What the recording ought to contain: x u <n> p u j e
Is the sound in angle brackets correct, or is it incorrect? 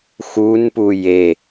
correct